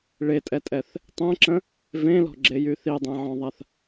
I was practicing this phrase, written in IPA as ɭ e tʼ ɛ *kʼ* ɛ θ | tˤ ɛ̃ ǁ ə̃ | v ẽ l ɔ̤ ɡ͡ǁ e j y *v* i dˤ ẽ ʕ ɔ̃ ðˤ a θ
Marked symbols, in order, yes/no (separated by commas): no, no